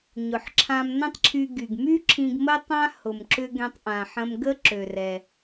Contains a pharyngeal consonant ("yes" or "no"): yes